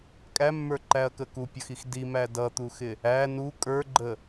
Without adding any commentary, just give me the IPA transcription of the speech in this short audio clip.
kʼæmːə˞ǃæɐ̯kə kupʲʌxix dimæ dʌt̪uxɪ | æ nu kʼə˞ɡ͡ǃə

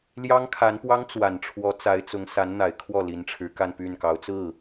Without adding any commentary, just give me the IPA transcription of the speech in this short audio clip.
ljɑ˥ŋkʰa˧˥npwɑ˥ŋ t͡swa˨˩nʈ͡ʂʰwɔ˧˥ t͡sa˧˥ɪ̯t͡sʊ˧˥ŋ sa˧˥nn̪a˨˩ɪ̯kʰwɔ˥˩ li˧˥nʈ͡ʂʰɻ̩˧˥ ka˥˧npy˥˩nkɑ˧˥ʊ̯ t͡sɹ̩˥˩

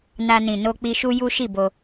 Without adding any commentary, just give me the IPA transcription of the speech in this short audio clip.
na˧nĩ˨no˧k͡pi˧ ʃu˦ju˦ʃi˦˨bo˧

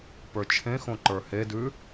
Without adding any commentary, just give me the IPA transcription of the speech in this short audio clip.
pə˞t͡ʃʰẽxõ ǃə˞hedʉ

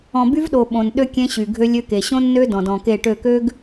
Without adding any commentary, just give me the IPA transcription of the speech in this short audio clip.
ɔ̃˨by˦vɗo˨ ɓõ˨n ɗø˦ kʲẽ˦ɕy˨ ɡʱø˦lʲø˦ke˨ ɕõ˦nːø˦ dɔ̃˨dɔ̃˨ke˦˨ʈø˦˨ kø˦ɡ

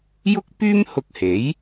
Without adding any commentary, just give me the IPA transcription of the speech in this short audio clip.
jʊ˥k̚pyː˥mhʊ˧k̚he˨˥j

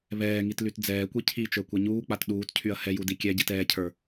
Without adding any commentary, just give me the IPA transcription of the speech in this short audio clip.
βɛːŋit lytd͡zɛːkʷi cʰit͡ʃə˞ kʷɛɲuːk͡pat ɗuːtcʰyɐ̯ hɛju dikʲɛɟit ɛːcʰə˞

